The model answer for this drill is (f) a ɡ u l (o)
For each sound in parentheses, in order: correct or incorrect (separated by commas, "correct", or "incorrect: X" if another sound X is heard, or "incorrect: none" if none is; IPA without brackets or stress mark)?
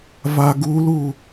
incorrect: v, incorrect: u